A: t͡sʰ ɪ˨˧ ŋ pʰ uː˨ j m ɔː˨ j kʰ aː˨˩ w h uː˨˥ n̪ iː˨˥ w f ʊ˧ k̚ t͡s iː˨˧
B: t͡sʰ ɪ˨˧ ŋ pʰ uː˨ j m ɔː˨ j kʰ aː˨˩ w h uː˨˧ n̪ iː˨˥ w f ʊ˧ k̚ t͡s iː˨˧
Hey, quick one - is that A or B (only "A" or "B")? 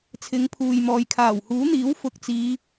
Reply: A